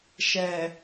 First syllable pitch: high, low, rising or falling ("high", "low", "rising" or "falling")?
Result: low